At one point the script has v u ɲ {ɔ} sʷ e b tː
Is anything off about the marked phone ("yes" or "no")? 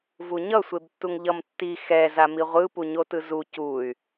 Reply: yes